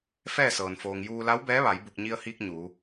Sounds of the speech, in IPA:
f ɛː˥˨ s ɤː˩ n f oː˩ ŋ j uː˧ l a˧˥ w b ɛː˧˥ ʋ a˩˧ j b u˧˩ k̚ ɲ i˧ ə̯ h iː˧ k̚ ɲ uː˩˧

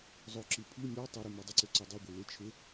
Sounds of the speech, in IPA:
zˤ o ǁ i pʰ i mʲ ɔ tˤ o ɾ y m y dˤ ʏ ǀ ʏ ǀ ø dˤ ʊ ɡʷ ɪ l ɪ t͡ʃʰ ɪ

